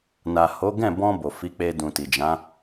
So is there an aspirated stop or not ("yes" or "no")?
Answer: no